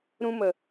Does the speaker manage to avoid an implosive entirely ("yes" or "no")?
yes